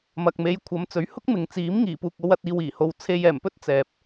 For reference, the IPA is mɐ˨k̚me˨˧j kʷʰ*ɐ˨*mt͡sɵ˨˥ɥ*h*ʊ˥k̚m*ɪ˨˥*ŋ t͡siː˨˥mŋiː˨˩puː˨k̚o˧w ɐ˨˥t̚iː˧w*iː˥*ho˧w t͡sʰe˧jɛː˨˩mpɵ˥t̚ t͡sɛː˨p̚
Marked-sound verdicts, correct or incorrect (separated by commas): incorrect, correct, incorrect, incorrect